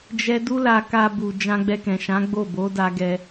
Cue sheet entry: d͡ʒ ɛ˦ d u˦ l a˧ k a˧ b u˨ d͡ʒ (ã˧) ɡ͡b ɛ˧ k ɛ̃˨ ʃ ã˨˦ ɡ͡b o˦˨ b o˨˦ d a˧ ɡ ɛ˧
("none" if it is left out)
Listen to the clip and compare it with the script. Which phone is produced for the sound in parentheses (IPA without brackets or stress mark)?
ã˧